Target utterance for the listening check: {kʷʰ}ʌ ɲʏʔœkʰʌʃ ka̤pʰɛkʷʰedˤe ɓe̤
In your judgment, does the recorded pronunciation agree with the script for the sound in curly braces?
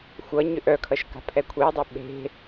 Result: no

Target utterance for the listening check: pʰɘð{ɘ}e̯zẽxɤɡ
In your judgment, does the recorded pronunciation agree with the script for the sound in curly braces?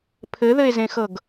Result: yes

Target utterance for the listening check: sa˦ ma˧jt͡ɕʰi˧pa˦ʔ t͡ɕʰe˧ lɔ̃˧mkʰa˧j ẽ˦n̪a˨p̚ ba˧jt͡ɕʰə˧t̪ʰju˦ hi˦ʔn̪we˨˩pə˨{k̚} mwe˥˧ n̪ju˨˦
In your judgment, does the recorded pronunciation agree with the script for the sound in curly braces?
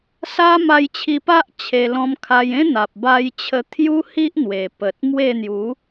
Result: no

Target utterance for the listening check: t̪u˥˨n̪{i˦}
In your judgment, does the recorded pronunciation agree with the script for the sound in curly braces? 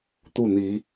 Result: no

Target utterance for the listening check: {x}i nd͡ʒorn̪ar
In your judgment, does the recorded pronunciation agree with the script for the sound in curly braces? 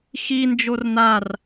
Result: yes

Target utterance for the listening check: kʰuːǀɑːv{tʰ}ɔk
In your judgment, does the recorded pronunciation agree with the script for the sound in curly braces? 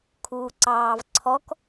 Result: no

